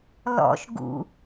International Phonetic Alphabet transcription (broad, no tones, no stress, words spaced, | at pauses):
lɔ̰ʃ ɡṵ